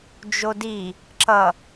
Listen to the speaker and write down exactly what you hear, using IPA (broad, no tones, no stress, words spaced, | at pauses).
d͡ʒodi | ǁʌ